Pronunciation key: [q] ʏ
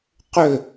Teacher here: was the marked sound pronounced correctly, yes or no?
yes